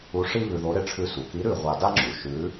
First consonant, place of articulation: retroflex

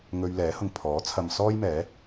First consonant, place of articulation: velar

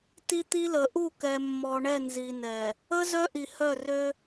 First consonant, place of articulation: alveolar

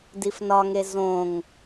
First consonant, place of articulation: alveolar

